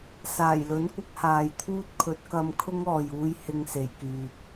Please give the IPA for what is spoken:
s aː˨˩ j l ɵ˨˥ n kʷ ɪ˨˥ k̚ h aː˨ j t̪ʰ uː˥ t̚ kʰ ɵ˨˥ t̚ k ɐ˧ m kʰ ʊ˥ ŋ ɔː˨ j uː˧ j h ɪ˧ ŋ s e˨˩ j k yː˨ p̚

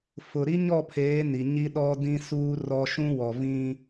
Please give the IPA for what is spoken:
f ʊ˨ ɾ i˦ ɲ ɔ˦˨ pʰ eː˨˦ n i˨ ɲ i˦ ɗ ɔ˦ d ĩ˦ s uː˦ r ɔ˦ ʃ ũ˦ w ɔ˨ v ĩ˦

